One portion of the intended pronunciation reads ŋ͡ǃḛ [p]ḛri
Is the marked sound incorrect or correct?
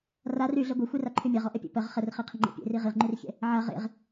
incorrect